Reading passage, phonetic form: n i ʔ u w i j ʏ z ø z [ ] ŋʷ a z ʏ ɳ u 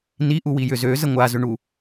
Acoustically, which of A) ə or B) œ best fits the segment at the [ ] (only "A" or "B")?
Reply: A